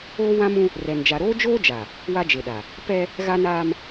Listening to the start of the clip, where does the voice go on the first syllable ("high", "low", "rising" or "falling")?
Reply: high